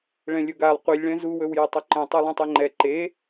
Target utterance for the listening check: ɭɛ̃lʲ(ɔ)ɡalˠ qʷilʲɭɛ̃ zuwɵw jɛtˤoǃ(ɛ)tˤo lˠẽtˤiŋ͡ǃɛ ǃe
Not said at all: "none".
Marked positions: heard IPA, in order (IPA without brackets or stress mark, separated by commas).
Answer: ɵ, ɛ̃